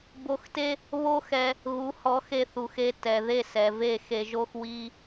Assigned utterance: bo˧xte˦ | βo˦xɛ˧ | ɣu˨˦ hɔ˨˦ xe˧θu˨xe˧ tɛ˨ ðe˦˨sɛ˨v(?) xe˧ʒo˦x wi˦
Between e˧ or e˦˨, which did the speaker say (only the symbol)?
e˦˨